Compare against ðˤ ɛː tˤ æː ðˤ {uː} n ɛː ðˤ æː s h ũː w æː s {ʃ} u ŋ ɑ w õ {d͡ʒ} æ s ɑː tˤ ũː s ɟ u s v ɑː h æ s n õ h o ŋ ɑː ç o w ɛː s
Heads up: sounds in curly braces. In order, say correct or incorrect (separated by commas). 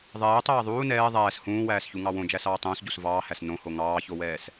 correct, incorrect, correct